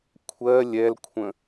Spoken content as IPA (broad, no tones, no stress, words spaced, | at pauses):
kʷʰɜ lʲɛlkʷʰə̃